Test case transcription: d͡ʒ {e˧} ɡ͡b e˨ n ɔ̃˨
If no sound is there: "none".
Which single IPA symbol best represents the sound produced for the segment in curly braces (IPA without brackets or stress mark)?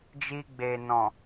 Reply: i˧